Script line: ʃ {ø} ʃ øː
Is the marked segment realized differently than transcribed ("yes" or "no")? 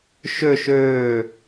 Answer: no